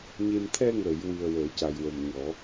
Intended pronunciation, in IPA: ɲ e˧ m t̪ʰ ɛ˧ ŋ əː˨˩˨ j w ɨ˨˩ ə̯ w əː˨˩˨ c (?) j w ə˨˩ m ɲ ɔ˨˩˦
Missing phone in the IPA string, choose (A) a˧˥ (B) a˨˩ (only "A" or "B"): B